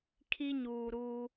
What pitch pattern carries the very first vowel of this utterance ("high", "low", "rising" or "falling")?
high